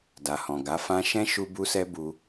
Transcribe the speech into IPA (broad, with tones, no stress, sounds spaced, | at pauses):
d a˨ h ɔ̃˨ ɡ a˨˦ f ã˧ ʃ ɛ̃˦ ʃ u˦ b u˦ s ɛ˦ b u˧